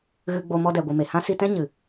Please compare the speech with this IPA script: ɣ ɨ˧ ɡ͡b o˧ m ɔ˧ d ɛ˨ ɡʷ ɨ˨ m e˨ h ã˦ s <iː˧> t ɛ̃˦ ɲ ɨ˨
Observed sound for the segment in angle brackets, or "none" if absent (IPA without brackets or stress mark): i˧